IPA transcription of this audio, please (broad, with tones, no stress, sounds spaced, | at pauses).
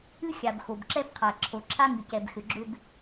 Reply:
ɨ˦ xʲ a˨ b x o˨ b ǁ ɛ˦ b qʰ a˨ ǁʰ o˨ ǁʰ a˦ ŋ ɨ˨ c ɛ˨ b x ʏ˨ ɡ͡ǁ ʏ˧ b